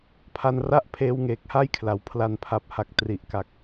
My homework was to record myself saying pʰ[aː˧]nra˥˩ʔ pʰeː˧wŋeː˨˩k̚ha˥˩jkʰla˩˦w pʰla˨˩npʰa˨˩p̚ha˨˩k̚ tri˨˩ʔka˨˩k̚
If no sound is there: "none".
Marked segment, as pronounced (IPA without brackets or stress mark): a˧